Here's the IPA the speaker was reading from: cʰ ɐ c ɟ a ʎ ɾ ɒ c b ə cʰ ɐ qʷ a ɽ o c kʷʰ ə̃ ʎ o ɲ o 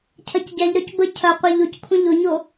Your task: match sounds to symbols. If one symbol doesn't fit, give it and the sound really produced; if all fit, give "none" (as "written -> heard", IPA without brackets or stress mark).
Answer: ɽ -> ʎ